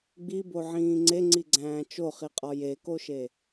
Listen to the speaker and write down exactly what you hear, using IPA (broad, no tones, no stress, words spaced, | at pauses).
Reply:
ɡ͡biboʕĩː ŋ͡ǀeŋ͡ǀiɡ͡ǀæ̃ː t͡ʃoχiqʼɒ jekoʃe